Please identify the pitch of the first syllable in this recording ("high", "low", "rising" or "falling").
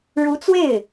rising